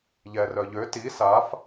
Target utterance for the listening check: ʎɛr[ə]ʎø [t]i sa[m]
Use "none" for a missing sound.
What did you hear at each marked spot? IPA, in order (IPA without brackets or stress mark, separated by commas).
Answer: œ, t, f